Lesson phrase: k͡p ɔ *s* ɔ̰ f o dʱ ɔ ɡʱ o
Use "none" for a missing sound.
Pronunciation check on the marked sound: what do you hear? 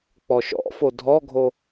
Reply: ʃ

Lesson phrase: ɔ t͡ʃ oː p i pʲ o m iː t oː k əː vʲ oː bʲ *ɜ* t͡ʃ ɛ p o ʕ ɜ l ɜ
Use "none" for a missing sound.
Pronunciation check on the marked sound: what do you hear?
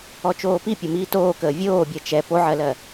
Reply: ɜ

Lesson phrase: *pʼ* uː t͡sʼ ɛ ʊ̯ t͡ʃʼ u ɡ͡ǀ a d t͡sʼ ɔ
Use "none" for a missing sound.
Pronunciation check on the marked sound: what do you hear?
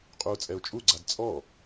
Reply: qʼ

